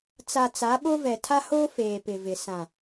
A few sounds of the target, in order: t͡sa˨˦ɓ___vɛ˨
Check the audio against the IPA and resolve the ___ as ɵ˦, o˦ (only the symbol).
o˦